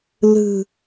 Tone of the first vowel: low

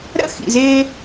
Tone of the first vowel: high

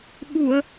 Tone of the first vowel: low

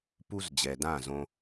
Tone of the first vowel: high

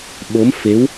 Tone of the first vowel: rising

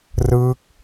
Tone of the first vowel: falling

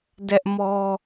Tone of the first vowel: high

